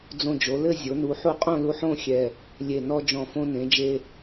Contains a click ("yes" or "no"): no